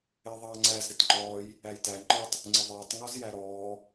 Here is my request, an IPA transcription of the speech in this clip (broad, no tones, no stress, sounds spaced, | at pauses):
ɪː ðˤ ɑː ŋ͡ǀ æ z ɾ ɪ t ŋ͡ǃ ɔː j | æ j t æ ŋ͡ǃ ɔ tˤ | ŋ͡ǀ ɪ ðˤ ɪː tˤ ŋ ɔ z j æ ɾ ɔː